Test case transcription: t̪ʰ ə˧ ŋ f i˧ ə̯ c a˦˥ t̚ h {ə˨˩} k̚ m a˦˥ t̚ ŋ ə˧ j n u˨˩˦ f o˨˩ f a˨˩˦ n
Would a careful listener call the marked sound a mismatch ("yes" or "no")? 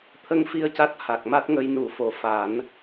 yes